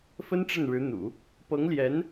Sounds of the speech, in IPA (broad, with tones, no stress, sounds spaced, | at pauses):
f ə˥ n ʈ͡ʂ ə˥˩ n ɻ ɻ̩˧˥ n̪ ṵ˨˩˦ | p ɤ˧˥ ŋ l j ɛ˧˥ n